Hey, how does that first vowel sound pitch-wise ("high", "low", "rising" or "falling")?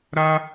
high